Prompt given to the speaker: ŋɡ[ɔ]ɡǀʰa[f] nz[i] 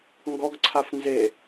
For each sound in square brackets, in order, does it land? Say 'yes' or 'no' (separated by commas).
yes, yes, no